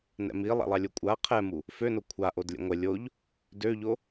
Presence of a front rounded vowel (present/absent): present